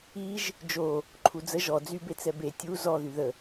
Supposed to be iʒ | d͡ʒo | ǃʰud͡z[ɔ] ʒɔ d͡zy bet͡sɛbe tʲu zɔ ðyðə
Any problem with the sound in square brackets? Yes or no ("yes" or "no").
yes